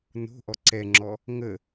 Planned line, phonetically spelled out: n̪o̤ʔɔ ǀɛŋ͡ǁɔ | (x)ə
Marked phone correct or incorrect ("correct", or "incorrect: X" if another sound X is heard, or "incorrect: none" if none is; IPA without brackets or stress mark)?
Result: incorrect: ŋ